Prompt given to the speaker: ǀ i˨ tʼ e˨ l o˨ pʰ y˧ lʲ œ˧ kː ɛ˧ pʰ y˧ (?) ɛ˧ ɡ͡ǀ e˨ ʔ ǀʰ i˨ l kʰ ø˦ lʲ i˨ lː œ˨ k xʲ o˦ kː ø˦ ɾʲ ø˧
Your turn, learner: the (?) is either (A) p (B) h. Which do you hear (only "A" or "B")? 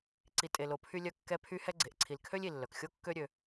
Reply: B